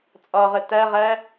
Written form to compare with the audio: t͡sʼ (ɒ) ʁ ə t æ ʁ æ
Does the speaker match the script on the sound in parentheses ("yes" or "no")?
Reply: yes